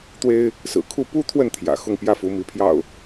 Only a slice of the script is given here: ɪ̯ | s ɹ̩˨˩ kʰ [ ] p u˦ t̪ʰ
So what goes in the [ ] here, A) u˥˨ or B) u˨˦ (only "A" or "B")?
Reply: A